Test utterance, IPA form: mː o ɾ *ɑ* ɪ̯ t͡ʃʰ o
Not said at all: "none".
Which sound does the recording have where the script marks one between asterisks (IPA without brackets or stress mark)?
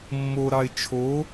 ɑ